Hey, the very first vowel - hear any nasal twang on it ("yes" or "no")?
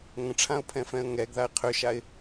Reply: yes